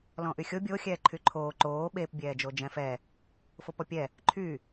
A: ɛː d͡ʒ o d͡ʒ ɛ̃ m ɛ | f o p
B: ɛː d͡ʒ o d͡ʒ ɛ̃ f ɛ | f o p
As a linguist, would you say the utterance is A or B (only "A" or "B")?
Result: B